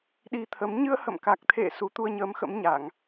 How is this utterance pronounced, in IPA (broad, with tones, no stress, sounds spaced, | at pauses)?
ɗ i˧ t̪ʰ ə˨˦ m ɲ ɨ˧ ə̯ h ə̰˧˨ m k a˨˩ k̚ t̪ʰ ḛ˧˨ s u˨˦ t̪ u˧ ə̯ ɲ əː˨˦ m x ə̰˧˥ m ɲ a˧˩˨ ŋ